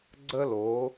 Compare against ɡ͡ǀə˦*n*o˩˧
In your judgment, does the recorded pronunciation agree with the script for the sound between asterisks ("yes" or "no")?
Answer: no